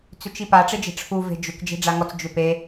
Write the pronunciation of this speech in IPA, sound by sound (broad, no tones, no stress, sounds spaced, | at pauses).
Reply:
t͡s ʏ t͡ʃ i p a ʈ͡ʂ e d͡ʒ e̤ ʈ͡ʂʰ u v e̤ d͡ʒ ʏ k d͡ʒ e̤ ɖ͡ʐ a ŋ ɔ t͡s d͡ʒ ʏ p e